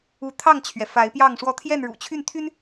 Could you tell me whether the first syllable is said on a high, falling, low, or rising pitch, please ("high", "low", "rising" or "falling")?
rising